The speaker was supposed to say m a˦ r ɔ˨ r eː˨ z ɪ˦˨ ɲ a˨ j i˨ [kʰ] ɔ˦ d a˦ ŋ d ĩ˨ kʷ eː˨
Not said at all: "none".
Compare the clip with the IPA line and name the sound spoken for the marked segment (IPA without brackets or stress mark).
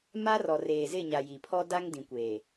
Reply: pʰ